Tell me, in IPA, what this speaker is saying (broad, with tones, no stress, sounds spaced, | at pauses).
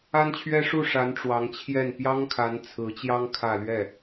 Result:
a˥ n t͡ɕʰ ɥ ɛ˥ ʂ u˥˩ ʂ a˧˥ n ʈ͡ʂ w ɑ˧˥ ŋ t͡ɕʰ j ɛ˥˩ n p j ɑ˥ ŋ kʰ a˧˥ n t͡sʰ ɹ̩˧˥ t͡ɕ j ɑ˥ ŋ kʰ ä˥˧ l ɥ ɛ˥˩